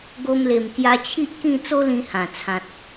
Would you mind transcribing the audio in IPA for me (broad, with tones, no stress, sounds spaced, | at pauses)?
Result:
ɡ o˧ m l e˨˩ m k j a˧ t͡ɕʰ i˦ ʔ k ĩ˥˧ t͡s o˦ l ĩ˧ h ã˨˩ t͡sʰ ã˨ t̚